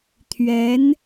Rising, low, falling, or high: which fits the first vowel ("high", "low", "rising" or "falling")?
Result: rising